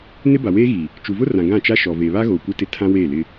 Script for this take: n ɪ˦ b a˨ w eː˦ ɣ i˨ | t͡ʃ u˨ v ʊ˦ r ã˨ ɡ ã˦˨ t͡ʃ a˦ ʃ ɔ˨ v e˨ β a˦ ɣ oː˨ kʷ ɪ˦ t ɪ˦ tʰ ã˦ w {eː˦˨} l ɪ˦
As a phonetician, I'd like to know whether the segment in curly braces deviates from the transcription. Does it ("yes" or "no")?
no